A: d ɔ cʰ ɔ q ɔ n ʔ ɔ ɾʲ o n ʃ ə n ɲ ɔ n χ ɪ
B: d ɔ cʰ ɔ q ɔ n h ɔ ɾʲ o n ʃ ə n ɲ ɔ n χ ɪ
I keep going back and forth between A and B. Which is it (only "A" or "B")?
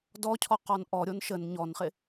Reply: A